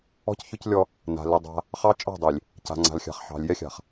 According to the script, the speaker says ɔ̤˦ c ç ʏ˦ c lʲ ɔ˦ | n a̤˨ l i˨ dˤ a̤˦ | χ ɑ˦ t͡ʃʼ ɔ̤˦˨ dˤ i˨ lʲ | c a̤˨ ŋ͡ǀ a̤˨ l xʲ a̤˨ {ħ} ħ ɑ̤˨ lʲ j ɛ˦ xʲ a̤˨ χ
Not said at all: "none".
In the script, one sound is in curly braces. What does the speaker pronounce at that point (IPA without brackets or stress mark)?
χ